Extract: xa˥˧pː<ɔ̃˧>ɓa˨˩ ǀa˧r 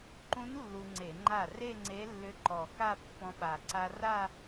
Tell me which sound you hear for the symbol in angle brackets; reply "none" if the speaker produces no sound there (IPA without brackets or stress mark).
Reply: ɔ̃˧